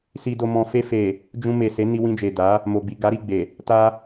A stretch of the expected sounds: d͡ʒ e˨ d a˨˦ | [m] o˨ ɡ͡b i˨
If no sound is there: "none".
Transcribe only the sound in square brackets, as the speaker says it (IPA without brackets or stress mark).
m